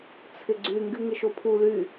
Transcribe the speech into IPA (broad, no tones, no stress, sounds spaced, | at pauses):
t͡sʰ ɪ ɡ͡ǀ y ŋ ɡ y ŋ ɪ ʃ o pʰ u l y